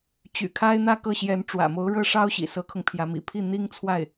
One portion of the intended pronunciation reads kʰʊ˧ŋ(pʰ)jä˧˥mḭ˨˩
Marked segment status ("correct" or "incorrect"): correct